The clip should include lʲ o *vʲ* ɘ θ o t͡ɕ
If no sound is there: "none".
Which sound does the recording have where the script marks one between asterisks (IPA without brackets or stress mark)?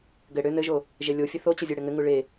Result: fʲ